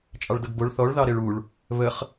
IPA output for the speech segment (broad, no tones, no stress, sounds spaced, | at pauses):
t͡ʃʼ ɑ ɭ d ʌ ɡ b o ɭ θ ɔ ɭ ð ɑ ɾ e ɭ u ɭ | β ə χ